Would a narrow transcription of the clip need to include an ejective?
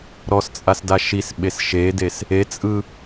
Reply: yes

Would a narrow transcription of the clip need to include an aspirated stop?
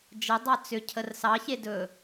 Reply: yes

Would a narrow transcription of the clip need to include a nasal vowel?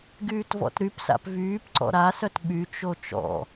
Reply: no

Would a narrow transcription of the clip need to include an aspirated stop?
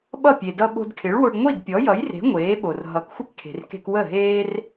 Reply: yes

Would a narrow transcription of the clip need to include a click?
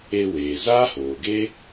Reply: no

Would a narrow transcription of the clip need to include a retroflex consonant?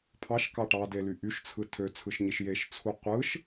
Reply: yes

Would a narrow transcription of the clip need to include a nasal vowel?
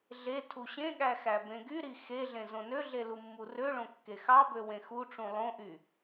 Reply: yes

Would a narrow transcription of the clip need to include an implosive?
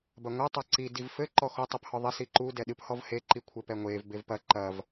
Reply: yes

